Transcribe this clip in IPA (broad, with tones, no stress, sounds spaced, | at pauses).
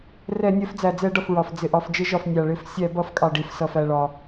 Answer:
r ɛ˧˩˧ nʲ ɜ˧˩˧ f d͡z æ˩ d͡z ɛ˧˩˧ ɖ ʌ˩ f ɹ ɒ˩ f d͡z ɪ˩ ʔ ɒ˩ f d͡ʒ ɪ˧˩˧ ʒ ɒ˩ f nʲ ɑ˩ ɭ ɪ˧˩˧ f sʲ æ˧˩˧ b ʌ˧˩˧ f kʼ ɑ˩ ɖ i˩ f s ʌ˩ f æ˩ ɭ ɒ˩